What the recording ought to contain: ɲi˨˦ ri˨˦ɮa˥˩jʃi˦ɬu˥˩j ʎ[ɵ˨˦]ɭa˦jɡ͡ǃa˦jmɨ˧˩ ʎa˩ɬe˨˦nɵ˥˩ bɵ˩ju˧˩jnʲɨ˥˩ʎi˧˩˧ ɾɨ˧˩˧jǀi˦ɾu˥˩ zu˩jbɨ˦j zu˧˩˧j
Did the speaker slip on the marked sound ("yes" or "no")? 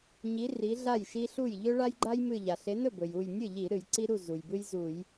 yes